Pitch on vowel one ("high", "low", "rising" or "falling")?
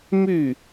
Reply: falling